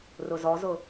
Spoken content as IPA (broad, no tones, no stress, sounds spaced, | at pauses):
r ʊ z ɔ z ʊ